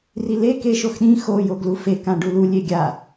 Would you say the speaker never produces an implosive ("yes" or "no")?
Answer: no